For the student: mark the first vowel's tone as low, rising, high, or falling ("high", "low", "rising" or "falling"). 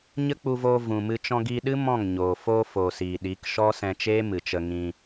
high